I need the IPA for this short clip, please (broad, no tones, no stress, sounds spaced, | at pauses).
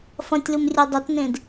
f ɐ̃ tʲ l u m rʲ e dˤ ɵ t n ẽ d